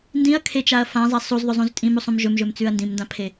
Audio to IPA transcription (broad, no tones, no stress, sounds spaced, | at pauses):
n d ĩ ɐ̯ kʰ e t͡ʃ a ɐ̯ f ã zˤ a sˤ u z ðˤ ɵ zˤ ũ z tʼ ĩ m u sˤ ũ m ʒ ɵ m ʒ ɵ m t͡s ʉ ɐ̯ n d ĩ m n d ã pʰ e